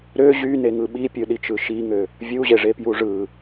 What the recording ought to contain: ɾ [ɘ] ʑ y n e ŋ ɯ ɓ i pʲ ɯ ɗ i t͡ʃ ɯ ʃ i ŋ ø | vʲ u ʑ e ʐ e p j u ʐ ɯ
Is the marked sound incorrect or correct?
incorrect